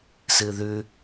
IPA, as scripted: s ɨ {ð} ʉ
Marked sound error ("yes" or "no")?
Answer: no